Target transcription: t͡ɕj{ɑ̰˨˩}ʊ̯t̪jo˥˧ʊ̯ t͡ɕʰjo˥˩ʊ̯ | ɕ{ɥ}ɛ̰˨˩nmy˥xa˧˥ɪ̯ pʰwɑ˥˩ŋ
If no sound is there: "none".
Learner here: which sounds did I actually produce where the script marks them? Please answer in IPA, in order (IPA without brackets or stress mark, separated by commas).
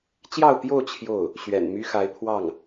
ɑ˥˧, ɥ